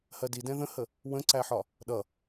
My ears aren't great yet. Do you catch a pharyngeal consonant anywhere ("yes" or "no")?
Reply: yes